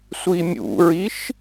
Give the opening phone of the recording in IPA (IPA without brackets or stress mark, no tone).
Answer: sʷ